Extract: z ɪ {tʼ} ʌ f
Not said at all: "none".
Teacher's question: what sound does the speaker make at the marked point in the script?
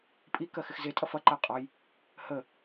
tʼ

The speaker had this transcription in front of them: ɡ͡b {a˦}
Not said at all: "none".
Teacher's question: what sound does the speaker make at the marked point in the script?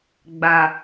a˨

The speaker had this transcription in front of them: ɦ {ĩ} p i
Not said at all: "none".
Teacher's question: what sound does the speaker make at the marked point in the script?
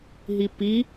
i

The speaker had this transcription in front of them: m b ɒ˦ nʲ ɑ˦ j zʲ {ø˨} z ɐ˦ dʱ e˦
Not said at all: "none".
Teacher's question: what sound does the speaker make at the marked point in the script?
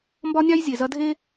e˨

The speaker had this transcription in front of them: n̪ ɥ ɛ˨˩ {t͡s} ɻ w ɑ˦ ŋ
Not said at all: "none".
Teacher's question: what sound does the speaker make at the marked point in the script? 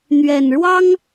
n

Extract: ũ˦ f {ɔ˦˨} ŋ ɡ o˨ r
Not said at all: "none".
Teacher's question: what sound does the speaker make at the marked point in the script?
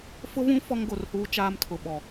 ɔ˦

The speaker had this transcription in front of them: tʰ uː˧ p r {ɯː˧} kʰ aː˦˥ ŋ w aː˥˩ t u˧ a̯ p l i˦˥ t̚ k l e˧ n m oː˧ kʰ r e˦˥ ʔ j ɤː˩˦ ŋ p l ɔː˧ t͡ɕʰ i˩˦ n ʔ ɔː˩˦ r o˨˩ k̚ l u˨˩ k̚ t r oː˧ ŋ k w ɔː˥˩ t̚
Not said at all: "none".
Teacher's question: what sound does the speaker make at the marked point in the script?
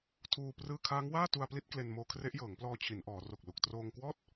ɯː˧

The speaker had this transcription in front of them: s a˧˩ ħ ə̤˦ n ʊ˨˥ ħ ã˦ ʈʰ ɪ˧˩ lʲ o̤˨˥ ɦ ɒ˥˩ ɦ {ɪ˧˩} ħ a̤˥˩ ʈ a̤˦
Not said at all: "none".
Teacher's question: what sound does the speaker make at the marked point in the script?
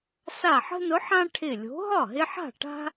ɪ˦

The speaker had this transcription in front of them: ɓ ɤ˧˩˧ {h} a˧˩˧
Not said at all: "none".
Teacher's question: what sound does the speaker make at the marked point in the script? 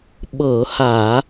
h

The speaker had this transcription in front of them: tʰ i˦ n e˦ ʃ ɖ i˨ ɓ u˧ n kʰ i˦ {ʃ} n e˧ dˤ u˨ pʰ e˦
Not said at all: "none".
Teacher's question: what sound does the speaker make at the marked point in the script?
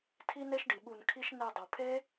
ʃ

